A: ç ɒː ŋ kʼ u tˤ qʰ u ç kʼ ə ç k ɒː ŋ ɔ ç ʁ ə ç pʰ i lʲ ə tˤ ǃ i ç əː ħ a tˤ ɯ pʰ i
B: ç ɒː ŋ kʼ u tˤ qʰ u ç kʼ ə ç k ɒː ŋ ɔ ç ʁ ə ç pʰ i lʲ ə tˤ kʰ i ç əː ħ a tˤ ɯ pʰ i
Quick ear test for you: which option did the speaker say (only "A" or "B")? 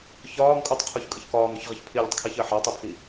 B